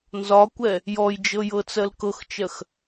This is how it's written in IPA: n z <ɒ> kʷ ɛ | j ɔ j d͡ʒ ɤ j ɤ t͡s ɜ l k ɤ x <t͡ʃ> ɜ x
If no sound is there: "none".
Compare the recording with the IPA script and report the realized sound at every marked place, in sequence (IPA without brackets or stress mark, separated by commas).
ɒ, t͡ʃ